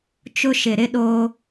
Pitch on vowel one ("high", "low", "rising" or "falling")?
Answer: high